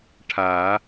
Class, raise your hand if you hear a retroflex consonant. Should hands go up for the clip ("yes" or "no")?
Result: yes